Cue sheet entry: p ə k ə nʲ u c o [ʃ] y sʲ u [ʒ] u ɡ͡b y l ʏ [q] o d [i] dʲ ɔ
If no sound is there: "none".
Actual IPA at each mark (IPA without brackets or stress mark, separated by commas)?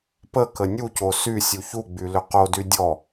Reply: s, ç, q, y